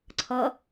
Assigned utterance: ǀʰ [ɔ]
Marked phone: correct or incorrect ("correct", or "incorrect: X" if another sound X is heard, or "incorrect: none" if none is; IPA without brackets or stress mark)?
incorrect: ʌ